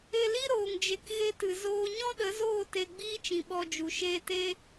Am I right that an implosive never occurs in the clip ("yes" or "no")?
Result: no